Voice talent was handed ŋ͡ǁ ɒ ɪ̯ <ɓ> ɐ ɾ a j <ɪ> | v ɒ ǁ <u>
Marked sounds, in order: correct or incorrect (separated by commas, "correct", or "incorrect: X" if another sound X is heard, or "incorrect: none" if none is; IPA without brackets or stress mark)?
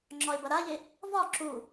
incorrect: b, correct, correct